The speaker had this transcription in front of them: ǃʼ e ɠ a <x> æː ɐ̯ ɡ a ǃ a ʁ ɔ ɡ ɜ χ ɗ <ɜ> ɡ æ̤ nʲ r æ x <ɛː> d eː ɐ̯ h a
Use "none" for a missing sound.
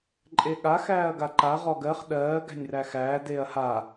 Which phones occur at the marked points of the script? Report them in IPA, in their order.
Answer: x, ɜː, æː

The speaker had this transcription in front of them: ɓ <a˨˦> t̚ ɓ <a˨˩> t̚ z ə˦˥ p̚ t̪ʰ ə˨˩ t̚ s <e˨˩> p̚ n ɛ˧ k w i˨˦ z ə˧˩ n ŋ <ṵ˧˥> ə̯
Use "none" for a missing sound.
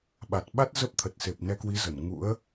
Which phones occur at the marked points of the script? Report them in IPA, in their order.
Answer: a˨˩, a˦˥, e˨˩, ṵ˧˥

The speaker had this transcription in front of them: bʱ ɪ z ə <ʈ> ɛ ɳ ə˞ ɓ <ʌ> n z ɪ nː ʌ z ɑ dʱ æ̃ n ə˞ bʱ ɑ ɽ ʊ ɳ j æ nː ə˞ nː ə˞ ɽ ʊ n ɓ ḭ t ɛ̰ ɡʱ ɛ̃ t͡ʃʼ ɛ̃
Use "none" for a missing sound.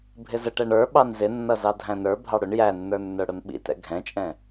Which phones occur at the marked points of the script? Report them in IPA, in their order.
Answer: ʈ, ɑ

